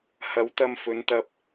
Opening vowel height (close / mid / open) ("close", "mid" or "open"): open